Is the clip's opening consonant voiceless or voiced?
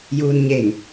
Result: voiced